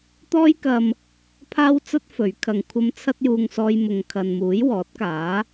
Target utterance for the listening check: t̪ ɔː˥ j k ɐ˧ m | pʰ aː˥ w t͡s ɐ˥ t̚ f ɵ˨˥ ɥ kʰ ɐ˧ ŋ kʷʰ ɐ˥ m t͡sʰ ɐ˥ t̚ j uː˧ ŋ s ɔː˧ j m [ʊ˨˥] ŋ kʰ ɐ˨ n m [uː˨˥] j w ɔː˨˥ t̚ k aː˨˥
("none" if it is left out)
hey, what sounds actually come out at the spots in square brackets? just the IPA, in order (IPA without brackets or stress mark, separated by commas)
ʊ˨, uː˨˥